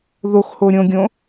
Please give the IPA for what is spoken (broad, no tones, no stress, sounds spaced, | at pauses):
ð o x h o ɾʲ õ ɡʲ õ